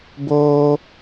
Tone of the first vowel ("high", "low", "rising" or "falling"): high